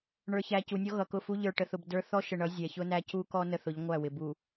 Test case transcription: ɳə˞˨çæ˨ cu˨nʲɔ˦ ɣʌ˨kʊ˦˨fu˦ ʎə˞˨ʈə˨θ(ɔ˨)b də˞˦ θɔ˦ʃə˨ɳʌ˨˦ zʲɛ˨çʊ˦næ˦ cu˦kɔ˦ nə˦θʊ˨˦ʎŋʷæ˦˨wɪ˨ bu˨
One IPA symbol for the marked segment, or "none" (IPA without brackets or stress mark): ʊ˨